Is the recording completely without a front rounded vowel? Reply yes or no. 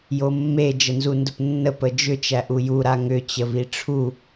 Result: no